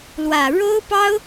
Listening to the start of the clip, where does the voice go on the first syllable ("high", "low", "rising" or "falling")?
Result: low